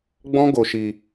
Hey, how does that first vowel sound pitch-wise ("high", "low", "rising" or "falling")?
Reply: high